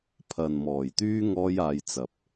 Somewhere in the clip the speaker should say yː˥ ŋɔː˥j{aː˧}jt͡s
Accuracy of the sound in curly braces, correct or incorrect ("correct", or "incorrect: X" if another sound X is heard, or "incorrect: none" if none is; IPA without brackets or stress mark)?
correct